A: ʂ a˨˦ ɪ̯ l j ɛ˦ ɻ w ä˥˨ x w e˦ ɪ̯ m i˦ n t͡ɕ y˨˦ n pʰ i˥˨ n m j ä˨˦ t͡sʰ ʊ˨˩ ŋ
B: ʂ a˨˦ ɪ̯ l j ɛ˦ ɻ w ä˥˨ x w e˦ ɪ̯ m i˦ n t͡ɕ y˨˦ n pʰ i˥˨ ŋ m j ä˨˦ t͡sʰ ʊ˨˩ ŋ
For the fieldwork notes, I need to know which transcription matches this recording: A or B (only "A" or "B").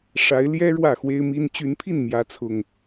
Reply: A